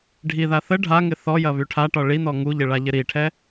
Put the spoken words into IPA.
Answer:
ɖʱ i ð a θ ə ɖʱ a ŋ ɪ θ ɔ j ɐ β y ʈʰ a ʈ ɒ ɭ i n ɔ ŋ u ʎ ɪ ɭ a ʎ ɪ ɾ i ʈʰ ɛ

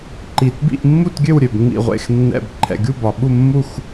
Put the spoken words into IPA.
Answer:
ǃ i˨˩ t b ḭ˥˨ ʔ mː u˥˨ t ɡʲ ø˥˨ w ɾʲ ø˨˩ b ŋ͡m ḭ˨˩ ʁʷ ḛ˨˩ x nː ɛ̰˨˩ b ǃʰ ɛ̰˨˩ ɡʲ u˥˨ b ɒ˨˩ ɓ u˥˨ mː u˥˨ x

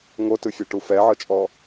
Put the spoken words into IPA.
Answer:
ŋ o t ɯ fʲ a ʈ u f ɛ ʕ ɤ t͡ʃʼ ɔ

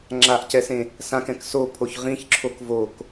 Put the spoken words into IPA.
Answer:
ŋ͡ǁ a ʔ c ɛ s ẽ | s ã k ɛ̃ k s o pʰ o ç ʁ ĩ ç ǁʰ o k v o k

